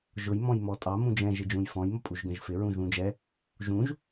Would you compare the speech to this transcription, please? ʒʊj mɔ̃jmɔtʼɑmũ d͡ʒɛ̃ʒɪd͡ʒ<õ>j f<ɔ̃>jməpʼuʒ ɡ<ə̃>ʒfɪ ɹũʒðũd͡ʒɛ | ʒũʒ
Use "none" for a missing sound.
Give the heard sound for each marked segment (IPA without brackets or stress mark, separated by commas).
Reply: ũ, ɔ̃, ə̃